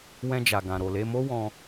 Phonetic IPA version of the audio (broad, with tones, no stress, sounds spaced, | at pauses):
w ɛ̃˧ d͡ʒ a˨ ɡ ã˨ ɾ o˨ l e˧ m o˦ w ɔ̃˧